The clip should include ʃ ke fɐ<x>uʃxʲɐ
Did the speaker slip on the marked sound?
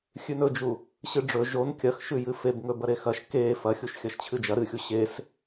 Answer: yes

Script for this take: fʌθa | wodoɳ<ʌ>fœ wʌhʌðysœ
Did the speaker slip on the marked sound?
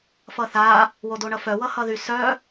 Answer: no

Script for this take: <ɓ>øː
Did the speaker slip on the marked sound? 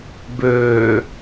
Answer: yes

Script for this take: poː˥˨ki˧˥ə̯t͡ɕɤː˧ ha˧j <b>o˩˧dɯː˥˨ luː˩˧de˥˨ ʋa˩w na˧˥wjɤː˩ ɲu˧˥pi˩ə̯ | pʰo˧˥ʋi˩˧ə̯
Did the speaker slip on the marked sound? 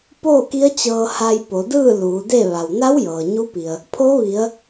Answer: yes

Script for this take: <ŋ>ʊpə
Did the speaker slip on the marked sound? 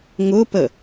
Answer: no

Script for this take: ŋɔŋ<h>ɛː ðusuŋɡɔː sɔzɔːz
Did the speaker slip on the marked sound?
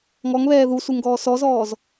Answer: yes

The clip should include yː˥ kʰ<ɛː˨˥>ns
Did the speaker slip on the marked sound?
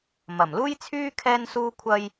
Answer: yes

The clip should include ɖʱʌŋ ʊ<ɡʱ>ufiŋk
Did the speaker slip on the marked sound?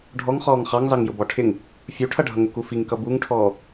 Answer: yes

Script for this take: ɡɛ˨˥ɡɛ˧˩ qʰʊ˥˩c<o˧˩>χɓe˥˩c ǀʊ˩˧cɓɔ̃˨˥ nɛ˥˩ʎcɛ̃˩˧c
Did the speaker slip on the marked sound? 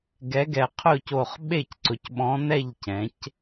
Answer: no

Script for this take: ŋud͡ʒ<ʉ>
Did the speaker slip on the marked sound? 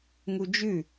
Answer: no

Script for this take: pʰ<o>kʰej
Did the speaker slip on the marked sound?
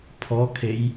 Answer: yes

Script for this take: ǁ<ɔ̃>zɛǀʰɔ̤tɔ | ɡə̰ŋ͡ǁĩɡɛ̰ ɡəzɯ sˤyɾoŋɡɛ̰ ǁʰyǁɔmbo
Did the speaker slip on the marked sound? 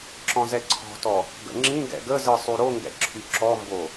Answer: no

